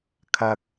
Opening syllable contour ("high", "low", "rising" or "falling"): high